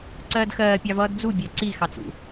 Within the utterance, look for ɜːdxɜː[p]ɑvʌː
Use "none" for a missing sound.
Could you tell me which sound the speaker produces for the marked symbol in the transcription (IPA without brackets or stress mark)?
pʲ